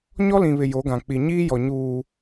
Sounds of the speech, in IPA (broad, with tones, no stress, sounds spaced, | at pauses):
ɲ ɔ˦ l ĩ˨ β ɪ˨ j o˨˦ ɡ ã˨ k͡p i˨ ɲ iː˦ j ɔ˨ ɲ uː˨